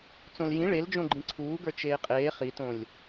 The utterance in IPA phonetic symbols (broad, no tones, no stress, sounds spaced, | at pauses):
t͡s õ l j ĩ ɭ e l d͡ʒ õ ɡ͡ǃ ĩ ǀʰ uː ɡ ə˞ t͡ʃ eː qʼ eː χ i t õ lʲ